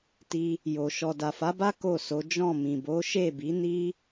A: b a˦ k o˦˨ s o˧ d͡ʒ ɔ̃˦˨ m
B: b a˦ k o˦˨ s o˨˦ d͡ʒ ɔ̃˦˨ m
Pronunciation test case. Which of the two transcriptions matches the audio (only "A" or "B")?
B